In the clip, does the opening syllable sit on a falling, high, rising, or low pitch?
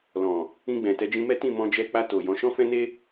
low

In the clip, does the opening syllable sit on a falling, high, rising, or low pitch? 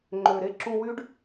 low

